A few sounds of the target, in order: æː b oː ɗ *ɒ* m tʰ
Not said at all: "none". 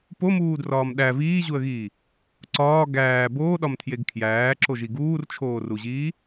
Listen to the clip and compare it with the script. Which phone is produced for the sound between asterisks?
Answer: ɒ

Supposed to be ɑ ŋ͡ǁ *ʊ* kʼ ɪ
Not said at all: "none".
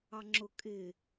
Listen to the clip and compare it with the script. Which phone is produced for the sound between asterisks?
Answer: ʊ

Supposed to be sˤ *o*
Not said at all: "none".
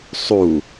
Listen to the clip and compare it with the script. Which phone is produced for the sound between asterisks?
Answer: u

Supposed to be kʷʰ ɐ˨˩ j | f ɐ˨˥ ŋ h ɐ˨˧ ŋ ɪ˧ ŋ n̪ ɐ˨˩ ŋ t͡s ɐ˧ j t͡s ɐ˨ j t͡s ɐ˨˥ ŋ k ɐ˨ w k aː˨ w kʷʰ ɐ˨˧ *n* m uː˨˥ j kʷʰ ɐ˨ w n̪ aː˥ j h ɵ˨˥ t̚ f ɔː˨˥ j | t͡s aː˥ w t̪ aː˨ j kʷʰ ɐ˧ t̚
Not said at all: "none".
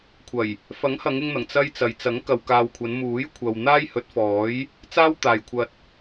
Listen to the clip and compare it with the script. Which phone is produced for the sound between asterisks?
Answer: n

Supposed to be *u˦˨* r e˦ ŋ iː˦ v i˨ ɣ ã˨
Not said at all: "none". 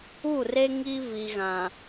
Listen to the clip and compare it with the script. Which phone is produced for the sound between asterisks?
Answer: u˦˨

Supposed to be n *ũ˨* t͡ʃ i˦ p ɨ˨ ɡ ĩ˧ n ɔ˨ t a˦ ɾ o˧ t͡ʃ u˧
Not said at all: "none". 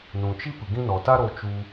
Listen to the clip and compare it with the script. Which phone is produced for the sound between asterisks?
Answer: ũ˨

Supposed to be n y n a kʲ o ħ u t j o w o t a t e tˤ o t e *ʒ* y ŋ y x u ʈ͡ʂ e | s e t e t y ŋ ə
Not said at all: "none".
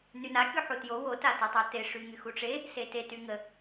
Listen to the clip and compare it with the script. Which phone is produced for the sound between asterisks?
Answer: ʂ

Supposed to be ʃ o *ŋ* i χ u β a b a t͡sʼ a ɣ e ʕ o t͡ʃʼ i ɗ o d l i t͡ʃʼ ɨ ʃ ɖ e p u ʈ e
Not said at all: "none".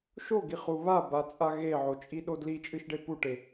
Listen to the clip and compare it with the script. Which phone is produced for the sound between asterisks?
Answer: ɡ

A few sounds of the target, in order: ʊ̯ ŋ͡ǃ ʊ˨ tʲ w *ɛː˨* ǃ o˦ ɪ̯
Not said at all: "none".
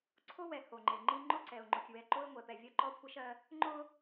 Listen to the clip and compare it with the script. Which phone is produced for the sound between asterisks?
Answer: ɛ˨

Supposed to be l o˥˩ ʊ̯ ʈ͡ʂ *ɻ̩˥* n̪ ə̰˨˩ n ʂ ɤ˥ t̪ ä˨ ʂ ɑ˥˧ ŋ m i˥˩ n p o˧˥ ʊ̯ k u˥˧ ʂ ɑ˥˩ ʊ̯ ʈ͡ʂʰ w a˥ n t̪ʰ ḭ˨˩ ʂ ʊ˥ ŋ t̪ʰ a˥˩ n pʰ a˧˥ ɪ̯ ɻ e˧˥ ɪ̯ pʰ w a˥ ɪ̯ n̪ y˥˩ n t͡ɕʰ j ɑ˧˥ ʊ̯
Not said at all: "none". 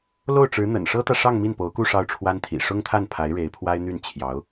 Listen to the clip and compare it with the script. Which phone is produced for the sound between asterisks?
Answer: ɻ̩˧˥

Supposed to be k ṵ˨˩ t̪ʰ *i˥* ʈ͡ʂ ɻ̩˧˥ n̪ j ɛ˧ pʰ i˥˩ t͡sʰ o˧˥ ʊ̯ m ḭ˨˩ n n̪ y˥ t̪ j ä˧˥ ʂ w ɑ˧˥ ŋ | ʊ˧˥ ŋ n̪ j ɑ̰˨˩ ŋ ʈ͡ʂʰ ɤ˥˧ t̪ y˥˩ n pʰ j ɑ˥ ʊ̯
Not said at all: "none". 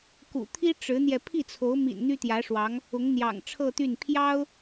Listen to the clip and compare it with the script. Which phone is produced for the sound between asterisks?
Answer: i˥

